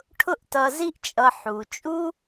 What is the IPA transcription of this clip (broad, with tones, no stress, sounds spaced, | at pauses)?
ʈʰ ʊ˦ ʔ t ʌ˨ z i˦ ʔ t͡ʃʼ ʌ˨ ħ u˩ t͡ʃʼ u˥